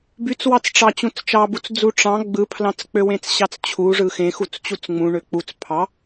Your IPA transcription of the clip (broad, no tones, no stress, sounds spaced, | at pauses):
b y t͡s w ɑ t͡s ʈ͡ʂ ɑ t͡ɕ ũ t͡s t͡ʃ ɑ b u t͡s d͡z u ʈ͡ʂ ɑ̃ ɡ͡b ɯ pʰ l ɑ̃ t͡s k͡p ø w ẽ t͡s ɕ ɑ t͡s t͡ɕʰ u ʐ ɯ x ẽ x u t͡s t͡ɕ u t͡s ŋ͡m ũ ɳ ø k͡p u t͡s pʰ ɑ